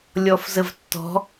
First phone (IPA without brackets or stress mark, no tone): lʲ